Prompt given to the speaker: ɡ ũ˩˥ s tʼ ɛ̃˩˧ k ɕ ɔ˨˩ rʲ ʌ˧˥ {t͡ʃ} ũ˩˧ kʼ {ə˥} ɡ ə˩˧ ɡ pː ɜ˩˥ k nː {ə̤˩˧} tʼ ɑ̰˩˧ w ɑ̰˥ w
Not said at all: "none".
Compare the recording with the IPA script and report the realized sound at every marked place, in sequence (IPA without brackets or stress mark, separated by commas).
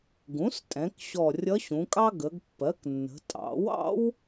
ɕ, ɑ˥, ə̤˩˧